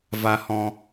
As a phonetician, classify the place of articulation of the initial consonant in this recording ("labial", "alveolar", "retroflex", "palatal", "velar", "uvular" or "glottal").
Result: labial